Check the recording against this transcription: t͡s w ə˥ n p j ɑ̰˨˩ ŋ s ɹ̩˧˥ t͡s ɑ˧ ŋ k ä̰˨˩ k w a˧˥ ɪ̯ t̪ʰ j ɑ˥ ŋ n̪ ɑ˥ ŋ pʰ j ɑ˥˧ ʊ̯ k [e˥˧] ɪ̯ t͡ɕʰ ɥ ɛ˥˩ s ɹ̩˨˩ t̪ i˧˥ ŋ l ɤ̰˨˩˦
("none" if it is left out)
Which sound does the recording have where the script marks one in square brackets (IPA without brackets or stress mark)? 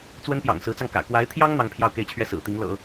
e˥˧